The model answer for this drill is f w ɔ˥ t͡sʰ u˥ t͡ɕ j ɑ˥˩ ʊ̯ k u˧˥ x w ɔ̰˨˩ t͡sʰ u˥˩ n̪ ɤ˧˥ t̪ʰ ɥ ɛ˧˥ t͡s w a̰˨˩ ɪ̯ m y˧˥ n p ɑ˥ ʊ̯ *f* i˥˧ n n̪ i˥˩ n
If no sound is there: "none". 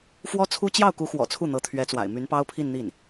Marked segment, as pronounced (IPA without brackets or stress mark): pʰ